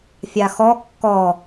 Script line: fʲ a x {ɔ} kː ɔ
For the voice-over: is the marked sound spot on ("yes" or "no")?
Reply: yes